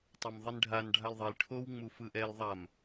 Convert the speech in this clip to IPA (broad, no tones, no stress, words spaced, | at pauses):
tˤɛmðˤinɖʱan ɖʱalðˤil ʈʰow ŋ͡mufɯʔɛl ðˤam